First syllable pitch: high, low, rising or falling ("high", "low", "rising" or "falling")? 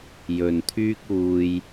low